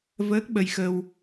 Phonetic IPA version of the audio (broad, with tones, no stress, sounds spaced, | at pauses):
v əː˦˥ k̚ ɓ ə˧ j x ə˧ w